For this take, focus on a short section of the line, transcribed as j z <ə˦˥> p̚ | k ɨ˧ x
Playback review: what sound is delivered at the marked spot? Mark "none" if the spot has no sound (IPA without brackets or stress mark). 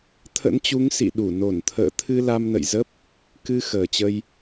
ə˦˥